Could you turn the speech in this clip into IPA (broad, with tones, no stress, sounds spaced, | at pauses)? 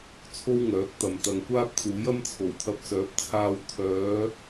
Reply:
t͡sʰ o˥ w ŋ œː˨˥ k̚ t̪ ɐ˨ m t̪ ɐ˨ ŋ kʷ aː˥ p̚ t͡s uː˨˥ j ɐ˥ m t͡sʰ o˨˩ w t̪ʰ ɐ˧ p̚ s œː˨˥ p̚ t͡sʰ aː˧ w t̪ʰ œː˨˧